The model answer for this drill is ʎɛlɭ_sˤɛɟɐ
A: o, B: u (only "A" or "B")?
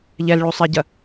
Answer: B